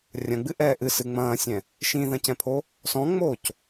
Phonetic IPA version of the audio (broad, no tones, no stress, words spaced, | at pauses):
rʲɐ̃ɡ͡bɨʔɛː ʔɨsɨ ŋ͡mɐ̃ːsʲɛ̃ | ʃĩðɐ̃cɛ̃pʰo | sɔ̃ŋ͡moːc